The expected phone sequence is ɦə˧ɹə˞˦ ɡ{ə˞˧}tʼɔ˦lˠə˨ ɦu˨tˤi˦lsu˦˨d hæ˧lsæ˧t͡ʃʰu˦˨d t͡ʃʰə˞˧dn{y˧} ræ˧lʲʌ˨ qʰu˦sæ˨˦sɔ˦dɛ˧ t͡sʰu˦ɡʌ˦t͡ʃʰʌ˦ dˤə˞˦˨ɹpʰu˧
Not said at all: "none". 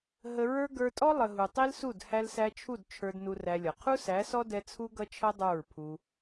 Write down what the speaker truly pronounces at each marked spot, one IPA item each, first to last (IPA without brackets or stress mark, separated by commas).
ə˞˧, u˧